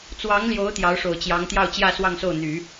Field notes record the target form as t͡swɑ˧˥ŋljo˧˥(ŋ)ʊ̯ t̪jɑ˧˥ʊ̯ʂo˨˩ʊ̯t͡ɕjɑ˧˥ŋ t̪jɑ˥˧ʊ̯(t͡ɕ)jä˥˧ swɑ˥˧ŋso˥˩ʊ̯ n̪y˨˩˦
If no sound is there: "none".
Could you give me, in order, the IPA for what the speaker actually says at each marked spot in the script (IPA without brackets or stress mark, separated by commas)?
none, t͡ɕ